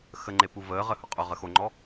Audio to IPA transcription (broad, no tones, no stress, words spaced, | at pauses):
xəŋ͡ǃe puvəːʁə hʊqʼʊʁə xoŋ͡ǃɔ